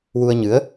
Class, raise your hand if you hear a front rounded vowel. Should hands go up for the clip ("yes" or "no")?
no